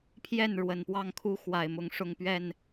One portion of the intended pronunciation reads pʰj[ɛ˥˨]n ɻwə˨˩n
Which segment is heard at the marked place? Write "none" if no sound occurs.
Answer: ɛ˥˨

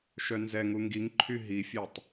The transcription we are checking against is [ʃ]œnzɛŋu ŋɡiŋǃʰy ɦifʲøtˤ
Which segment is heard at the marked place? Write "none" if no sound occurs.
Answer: ʃ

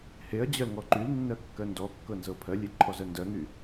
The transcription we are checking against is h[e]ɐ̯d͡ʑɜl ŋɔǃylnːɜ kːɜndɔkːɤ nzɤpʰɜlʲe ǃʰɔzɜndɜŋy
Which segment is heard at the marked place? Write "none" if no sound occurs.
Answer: e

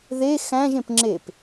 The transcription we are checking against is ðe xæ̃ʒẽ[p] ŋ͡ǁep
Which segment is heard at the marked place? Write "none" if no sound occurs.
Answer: p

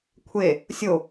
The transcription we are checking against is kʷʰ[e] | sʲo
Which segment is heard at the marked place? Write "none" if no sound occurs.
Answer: e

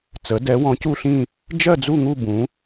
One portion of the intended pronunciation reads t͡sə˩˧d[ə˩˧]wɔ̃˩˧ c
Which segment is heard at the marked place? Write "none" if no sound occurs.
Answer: ɛ˩˧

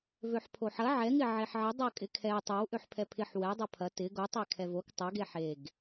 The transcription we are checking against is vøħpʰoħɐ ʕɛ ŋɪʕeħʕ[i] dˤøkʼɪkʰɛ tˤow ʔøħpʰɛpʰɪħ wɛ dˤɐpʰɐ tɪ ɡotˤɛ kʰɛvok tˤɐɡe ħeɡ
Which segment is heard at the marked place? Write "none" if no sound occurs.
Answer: ɪ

